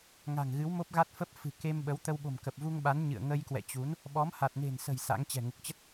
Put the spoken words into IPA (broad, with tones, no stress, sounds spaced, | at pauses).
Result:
ŋ a̤˨˩ ŋ ɣ ɨ˨˦ w m o˦˥ p̚ ɣ a˦˥ t̚ f ə˦˥ p̚ f ɨ̤˨˩ k e˧ m ɓ ə˨˦ w t̪ ə˧ w ɓ o̤˨˩ m k ə˨˩ p̚ v u˧ ŋ ɓ a˨˦ n ɲ ɨ̰˧˨ ə̯ ŋ ə˧ j k w ɛ̰˧˨ t͡ɕ u˨˦ n | ɓ ɔ˨˦ m h a˨˩ t̚ n e̤˨˩ n s ə̤˨˩ j s a̰˧˥ ŋ t͡ɕ ɛ̤˨˩ ŋ u˨˩ k̚ t͡ɕ ə˦˥ t̚